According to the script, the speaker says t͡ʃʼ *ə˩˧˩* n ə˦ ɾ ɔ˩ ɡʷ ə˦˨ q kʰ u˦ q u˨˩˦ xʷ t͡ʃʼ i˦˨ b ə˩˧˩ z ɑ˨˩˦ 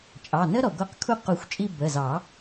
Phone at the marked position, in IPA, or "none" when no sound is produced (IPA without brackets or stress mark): ɑ˩˧˩